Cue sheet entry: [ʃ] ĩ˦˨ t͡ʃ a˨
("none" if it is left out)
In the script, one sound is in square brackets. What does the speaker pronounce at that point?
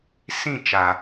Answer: s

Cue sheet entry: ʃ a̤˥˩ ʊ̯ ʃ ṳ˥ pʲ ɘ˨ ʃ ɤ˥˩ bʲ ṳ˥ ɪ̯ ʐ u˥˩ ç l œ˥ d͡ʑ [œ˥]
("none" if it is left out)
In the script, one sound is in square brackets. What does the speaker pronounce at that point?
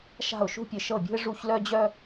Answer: œ˥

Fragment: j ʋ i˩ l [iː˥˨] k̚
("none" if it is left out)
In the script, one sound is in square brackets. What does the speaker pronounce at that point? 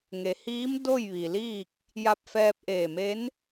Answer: iː˥˨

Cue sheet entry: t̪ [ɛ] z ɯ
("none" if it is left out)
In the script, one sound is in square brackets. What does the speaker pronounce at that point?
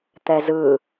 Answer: ɛ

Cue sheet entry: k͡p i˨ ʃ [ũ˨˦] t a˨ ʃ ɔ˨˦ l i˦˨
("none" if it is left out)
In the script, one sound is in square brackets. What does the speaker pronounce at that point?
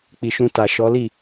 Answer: ũ˧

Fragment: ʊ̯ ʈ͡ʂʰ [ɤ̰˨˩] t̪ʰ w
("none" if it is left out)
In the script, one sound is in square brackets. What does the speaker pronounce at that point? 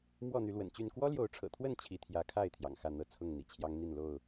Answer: ɤ̰˨˩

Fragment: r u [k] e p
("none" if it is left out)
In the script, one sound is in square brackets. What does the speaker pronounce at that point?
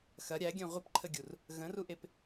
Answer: ʔ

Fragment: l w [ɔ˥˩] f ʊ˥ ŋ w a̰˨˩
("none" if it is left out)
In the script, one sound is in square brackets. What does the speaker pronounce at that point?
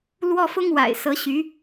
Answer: ɔ˥˩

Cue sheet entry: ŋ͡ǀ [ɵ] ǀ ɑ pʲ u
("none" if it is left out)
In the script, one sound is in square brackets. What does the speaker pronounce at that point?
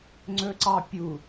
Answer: ɵ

